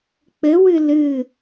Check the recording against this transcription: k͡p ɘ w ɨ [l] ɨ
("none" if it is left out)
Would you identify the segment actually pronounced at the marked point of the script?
l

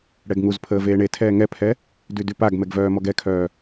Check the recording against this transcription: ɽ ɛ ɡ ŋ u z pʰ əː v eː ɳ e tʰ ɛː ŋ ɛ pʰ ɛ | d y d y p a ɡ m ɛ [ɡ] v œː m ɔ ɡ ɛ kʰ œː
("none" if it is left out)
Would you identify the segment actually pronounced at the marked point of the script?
ɡ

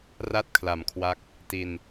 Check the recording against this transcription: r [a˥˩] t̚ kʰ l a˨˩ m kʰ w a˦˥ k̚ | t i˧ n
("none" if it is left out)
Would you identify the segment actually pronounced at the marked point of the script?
a˥˩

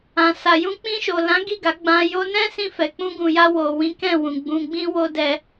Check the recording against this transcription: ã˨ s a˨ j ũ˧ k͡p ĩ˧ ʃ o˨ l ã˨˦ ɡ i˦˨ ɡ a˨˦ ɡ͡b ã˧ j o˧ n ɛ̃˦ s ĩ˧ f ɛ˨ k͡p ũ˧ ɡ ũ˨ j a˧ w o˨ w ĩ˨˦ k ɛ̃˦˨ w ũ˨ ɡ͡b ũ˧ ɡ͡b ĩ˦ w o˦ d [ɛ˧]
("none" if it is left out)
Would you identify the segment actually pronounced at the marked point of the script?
ɛ˧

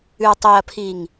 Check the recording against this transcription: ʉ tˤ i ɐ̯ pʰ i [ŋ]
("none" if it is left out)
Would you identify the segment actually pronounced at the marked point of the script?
ŋ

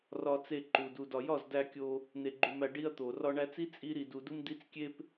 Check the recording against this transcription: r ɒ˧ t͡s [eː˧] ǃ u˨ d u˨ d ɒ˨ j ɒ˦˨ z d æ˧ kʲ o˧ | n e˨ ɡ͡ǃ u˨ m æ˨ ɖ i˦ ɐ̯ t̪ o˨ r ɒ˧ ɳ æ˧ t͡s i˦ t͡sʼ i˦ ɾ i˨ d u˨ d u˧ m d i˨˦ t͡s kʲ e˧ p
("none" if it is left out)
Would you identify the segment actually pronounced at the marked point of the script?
e˧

